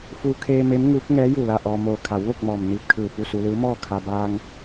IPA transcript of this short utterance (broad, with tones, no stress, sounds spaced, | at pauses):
f u˧ kʰ eː˧ m e˧˥ m ŋ uː˧˥ k̚ ŋ ɛː˧˥ j u˧˩ l a˥˨ ʔ ɔː˧ m oː˧ kʰ a˩˧ w ʋ o˥˨ k̚ m ɔː˩ m n iː˧˩ p̚ kʰ ɯː˧˩ p u˥˨ s u˧ l ɯː˧˥ m ɔː˥˨ kʰ a˧ b aː˧ ŋ